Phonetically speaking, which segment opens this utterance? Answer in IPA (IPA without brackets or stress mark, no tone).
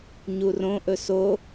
ɲ